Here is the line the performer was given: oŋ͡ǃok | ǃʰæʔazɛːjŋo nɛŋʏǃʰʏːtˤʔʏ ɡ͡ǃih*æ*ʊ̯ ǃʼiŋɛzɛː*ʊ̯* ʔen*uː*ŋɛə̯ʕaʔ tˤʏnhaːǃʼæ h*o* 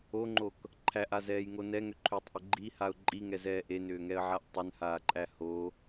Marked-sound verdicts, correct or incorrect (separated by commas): incorrect, incorrect, incorrect, correct